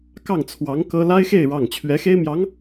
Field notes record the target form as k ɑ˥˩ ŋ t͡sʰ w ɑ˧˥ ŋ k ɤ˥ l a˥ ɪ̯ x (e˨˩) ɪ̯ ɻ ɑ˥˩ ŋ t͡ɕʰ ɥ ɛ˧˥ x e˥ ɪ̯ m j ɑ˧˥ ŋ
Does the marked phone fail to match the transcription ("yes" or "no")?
yes